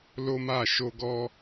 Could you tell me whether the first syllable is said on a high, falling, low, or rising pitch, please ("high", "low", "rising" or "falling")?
high